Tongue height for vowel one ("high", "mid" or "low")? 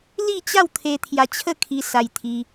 high